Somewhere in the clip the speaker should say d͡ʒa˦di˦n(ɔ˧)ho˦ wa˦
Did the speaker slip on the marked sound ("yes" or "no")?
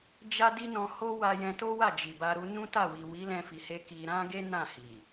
yes